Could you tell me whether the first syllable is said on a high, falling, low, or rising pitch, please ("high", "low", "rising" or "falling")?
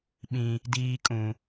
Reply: high